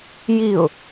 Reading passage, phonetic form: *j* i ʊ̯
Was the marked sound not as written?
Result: no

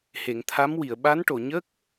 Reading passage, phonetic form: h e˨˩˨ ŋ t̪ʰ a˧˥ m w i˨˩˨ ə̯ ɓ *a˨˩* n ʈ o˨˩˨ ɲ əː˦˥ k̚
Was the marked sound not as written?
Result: yes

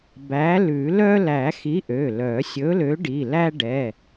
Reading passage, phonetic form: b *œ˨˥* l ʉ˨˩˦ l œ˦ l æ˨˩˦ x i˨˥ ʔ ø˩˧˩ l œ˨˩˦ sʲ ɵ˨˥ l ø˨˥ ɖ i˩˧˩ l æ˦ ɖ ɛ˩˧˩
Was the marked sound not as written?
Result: yes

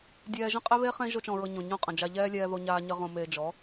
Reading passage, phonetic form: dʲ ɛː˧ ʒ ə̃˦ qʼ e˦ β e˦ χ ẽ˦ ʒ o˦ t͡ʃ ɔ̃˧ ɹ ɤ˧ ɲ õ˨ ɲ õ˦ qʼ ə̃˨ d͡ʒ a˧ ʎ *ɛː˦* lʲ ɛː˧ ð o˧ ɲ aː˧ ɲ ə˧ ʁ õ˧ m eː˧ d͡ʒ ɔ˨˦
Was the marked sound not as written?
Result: no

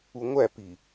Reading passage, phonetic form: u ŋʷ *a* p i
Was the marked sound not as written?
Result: yes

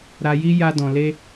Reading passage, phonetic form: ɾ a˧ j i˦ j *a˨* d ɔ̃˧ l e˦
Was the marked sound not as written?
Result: yes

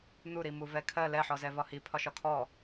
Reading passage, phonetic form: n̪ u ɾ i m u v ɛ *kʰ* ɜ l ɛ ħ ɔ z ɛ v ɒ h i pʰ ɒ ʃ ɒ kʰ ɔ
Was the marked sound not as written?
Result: no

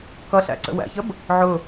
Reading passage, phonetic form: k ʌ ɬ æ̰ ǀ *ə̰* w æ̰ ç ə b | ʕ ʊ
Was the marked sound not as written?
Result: no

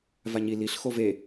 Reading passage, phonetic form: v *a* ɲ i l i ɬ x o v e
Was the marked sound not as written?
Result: no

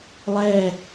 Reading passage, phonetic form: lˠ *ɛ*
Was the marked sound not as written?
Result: no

